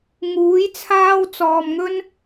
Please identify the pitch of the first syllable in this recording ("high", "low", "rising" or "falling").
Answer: rising